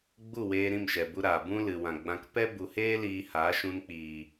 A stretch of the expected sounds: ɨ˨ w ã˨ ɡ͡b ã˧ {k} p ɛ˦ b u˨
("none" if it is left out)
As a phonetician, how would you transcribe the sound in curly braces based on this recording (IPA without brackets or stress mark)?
k